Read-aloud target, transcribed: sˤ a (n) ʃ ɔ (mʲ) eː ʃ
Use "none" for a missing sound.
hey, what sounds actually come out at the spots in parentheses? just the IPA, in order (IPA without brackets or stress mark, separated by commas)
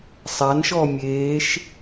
n, mʲ